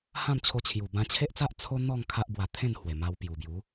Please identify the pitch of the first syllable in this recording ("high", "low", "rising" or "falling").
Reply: falling